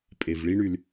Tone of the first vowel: low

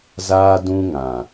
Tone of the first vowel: high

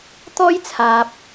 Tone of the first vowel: high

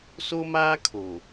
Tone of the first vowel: high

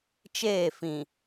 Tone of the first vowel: falling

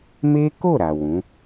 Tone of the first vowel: high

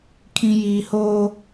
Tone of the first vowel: low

